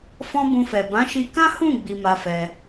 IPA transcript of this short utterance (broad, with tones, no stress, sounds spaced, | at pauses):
f ɔ̃˦ b ũ˧ f ɛ˨ b ã˨˦ ʃ i˧ k ã˦ h ũ˦˨ ɡ͡b i˧ m a˧ f ɛ˧